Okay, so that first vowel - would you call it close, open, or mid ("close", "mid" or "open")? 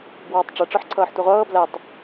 mid